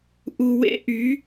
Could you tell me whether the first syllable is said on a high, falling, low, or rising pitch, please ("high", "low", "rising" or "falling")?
low